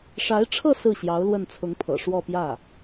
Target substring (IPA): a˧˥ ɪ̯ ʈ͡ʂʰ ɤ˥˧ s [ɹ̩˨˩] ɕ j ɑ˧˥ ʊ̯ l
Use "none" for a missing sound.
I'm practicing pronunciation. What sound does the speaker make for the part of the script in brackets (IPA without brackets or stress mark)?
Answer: ɹ̩˥˩